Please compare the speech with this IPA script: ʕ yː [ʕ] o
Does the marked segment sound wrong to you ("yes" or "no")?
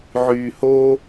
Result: yes